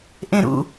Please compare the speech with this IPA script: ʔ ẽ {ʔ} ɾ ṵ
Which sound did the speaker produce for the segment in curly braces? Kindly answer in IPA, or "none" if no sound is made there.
none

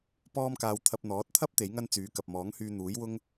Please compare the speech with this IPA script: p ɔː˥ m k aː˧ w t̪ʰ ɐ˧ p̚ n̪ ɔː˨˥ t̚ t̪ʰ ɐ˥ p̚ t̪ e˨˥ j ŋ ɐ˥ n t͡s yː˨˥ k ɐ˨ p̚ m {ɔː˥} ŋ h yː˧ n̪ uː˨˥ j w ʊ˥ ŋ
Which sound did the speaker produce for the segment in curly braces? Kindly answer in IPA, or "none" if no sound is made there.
ɔː˨˥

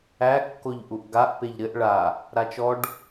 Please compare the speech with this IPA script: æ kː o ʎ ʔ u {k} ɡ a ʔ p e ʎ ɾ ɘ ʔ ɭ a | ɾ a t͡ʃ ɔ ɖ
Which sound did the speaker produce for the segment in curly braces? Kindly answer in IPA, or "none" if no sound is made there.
ʔ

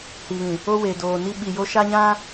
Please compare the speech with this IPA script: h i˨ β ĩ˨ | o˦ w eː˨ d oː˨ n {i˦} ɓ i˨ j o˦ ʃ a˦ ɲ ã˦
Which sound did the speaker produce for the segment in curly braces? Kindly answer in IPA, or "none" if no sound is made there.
i˦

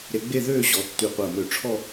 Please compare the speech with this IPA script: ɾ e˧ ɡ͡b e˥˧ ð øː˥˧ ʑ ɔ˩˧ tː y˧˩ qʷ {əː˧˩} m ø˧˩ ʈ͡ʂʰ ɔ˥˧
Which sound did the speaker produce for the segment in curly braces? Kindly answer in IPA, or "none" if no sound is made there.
əː˧˩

